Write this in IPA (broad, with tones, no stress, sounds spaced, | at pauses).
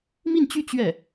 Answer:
m i˥˧ n t͡ɕ y˥˧ t͡ɕ ɥ ɛ˥˩